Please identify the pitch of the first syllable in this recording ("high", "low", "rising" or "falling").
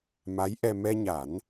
rising